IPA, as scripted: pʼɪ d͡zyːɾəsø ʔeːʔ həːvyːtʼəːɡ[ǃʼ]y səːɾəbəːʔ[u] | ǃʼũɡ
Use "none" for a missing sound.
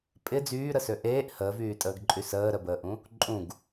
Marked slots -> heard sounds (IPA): ǃʼ, ũ

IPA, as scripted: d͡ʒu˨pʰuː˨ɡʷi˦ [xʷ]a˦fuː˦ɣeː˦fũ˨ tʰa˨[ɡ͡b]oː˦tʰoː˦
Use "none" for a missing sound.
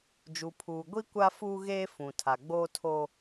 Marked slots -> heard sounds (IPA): kʷ, ɡ͡b

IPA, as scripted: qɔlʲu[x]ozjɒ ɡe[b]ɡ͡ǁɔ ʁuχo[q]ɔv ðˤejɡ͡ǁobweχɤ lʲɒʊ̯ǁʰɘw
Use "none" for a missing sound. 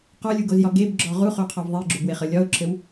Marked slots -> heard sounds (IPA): ɡ, b, qʰ

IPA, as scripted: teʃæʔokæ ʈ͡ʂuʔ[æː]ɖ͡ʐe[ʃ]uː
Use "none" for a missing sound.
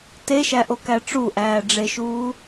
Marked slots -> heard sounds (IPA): æː, ʃ

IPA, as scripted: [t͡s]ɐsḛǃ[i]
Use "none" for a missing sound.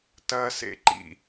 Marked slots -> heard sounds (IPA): t, ḭ

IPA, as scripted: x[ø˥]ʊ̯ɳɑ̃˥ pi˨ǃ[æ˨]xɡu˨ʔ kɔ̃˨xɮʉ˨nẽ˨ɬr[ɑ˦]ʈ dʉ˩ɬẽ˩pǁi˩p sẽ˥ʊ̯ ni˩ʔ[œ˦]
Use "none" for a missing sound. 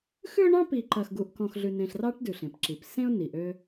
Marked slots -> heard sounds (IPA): ʉ˥, ɐ˨, ɑ˦, ø˦

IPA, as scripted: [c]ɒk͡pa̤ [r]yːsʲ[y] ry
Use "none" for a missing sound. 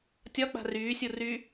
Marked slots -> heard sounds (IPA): tʲ, r, u

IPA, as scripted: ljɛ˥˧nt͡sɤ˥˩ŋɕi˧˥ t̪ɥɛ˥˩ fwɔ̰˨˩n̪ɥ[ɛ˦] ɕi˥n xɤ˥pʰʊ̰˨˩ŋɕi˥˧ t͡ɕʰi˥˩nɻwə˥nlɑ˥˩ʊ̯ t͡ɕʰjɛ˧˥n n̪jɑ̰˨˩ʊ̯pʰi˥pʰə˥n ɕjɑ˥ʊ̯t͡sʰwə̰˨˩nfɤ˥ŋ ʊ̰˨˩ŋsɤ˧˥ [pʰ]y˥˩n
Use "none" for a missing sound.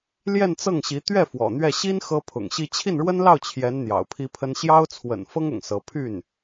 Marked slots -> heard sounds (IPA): ɛ˥˩, pʰ

